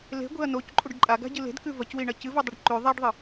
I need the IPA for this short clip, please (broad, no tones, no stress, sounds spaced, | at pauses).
l e̤ ɡʷ e̤ ɐ̯ n o c ǃʼ u ɖ ǃʼ a ɡ a̤ ɟ ɨ l e̤ d k ʉ v ɐ c w i ɳ ɐ c ɨ v u dˤ ɨ ɖ ǃ ʉ ðˤ a ɖ ðˤ ɨ